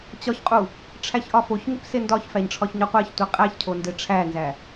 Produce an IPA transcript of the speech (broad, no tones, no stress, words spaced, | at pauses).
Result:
t͡ɕɒçqʼu | ʈ͡ʂʰæçʔɒfoçŋip sendɒçfæɲ ʈ͡ʂʰɒçɲɒqʷæçtʷi qʼæçcʰo ndeʈ͡ʂʰænzæ